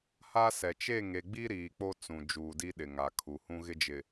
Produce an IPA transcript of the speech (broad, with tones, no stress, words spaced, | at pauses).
ha˦sɛ˨ t͡ʃe˦˨ŋe˨ɡ͡bi˦ ɾiː˨k͡po˦ t͡sũ˨ d͡ʒuː˨di˦ɗɪ˨ ŋa˨ kʰu˨hũ˦ ɣɪ˦d͡ʒɪ˨